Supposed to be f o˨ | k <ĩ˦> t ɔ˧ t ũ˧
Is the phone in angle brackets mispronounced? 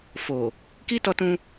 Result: yes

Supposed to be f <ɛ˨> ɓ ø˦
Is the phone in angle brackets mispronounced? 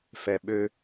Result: no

